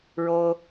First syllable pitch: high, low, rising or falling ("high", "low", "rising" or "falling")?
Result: high